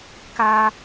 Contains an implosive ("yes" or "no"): no